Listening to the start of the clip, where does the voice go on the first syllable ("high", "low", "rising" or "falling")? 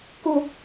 low